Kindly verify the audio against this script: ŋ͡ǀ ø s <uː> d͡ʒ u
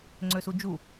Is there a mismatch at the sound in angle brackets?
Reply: yes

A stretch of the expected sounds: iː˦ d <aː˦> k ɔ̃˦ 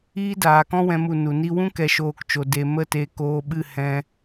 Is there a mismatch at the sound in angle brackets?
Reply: yes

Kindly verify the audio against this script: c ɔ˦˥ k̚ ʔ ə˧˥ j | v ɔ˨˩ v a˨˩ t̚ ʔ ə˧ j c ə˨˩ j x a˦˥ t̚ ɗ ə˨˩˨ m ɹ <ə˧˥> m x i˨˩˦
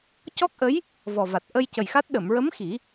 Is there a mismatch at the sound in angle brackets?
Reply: no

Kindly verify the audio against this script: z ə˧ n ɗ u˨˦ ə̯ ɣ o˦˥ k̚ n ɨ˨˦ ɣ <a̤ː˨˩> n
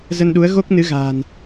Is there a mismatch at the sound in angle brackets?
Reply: no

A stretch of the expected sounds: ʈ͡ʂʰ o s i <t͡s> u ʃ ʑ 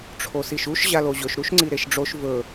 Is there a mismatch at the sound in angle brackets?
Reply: yes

